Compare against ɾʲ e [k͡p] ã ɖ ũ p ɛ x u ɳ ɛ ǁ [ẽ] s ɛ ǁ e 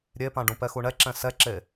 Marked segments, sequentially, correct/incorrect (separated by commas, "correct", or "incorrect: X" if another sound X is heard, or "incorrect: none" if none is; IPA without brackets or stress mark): incorrect: p, incorrect: ɛ̃